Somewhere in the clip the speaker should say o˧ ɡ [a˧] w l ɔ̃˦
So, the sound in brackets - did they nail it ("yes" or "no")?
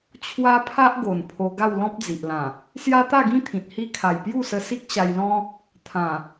no